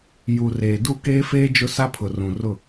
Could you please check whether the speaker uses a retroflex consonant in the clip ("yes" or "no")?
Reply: no